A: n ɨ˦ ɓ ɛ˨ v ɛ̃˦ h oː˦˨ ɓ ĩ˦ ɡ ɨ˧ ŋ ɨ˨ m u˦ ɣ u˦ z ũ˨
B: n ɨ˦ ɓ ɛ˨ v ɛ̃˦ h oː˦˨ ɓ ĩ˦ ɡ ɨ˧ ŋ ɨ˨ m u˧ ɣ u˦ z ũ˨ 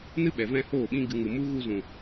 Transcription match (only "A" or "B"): A